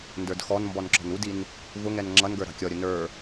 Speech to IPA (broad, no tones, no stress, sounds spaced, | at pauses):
n d ə˞ d x ɔ n m b ɔ n ǁ ɔ̤ n u d i n | v ʊ ŋ ɛ n ŋ͡ǁ ʌ n ɡ ə˞ ɾ ɑ̤ kʲ ɔ ɾʲ ʊ n ə˞